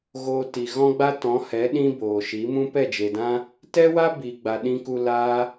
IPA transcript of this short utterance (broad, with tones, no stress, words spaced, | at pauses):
ɣoː˧ti˨ ɣɔ̃˦ɡ͡ba˦tɔ̃˨˦hɛ˨˦ ɗĩ˦boː˨ʃi˨˦ mũ˦pɛ˦˨d͡ʒe˨dã˦ | tɛ˦wa˦ biː˨ɡ͡ba˨ ɗĩ˧ku˧ laː˦